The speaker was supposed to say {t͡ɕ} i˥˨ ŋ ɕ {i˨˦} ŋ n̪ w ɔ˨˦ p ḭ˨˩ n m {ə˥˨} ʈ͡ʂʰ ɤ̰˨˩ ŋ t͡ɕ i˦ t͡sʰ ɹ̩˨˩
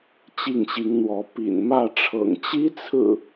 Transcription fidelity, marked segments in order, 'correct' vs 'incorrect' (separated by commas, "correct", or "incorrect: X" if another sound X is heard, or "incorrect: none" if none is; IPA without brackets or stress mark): correct, correct, incorrect: ä˥˨